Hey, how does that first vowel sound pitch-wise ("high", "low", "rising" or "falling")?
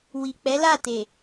low